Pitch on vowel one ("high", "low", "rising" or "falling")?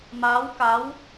rising